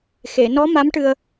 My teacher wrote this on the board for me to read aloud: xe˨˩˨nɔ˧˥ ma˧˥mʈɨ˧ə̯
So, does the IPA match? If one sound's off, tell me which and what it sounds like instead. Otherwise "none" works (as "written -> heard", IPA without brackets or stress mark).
none